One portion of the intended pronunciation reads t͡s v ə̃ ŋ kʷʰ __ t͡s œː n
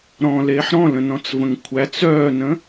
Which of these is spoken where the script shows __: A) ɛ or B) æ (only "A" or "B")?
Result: B